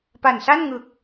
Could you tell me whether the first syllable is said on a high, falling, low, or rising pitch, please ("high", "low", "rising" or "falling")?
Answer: low